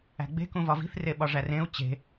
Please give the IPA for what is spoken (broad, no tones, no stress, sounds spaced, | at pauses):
æ̤ ɡ͡b e̤ k ũ v ɒ v i̤ θ r e ɓ ɒ ʐ æ r ẽ u̯ t͡ɕ e̤